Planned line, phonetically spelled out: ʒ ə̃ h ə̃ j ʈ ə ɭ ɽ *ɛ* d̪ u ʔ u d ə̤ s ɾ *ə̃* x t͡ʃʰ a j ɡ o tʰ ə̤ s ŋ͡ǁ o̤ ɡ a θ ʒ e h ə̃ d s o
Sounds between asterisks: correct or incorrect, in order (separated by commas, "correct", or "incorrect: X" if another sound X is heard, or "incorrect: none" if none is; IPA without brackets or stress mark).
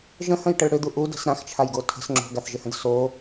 incorrect: ʏ, incorrect: ã